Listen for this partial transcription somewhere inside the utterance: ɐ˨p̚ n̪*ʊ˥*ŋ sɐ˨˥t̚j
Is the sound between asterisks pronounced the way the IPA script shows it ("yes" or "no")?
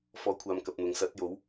no